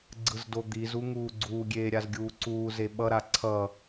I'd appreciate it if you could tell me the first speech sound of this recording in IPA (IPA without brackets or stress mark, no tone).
ɡ͡ǀ